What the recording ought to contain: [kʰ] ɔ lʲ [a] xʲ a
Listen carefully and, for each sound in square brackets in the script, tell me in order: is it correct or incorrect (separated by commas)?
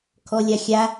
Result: correct, correct